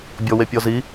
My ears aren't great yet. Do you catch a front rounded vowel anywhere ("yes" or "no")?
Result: no